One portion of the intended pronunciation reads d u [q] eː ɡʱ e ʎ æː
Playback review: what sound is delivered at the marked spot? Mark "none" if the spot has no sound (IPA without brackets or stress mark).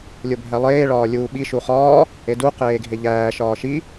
q